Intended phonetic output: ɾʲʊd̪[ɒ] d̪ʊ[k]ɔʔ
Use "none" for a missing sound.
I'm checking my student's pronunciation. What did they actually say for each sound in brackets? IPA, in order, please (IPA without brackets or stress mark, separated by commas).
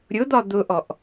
ɒ, ʔ